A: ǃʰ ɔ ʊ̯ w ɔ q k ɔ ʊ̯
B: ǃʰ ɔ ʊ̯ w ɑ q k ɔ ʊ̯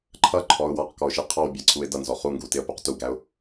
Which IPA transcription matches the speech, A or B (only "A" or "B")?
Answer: B